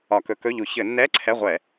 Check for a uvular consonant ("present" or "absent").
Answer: present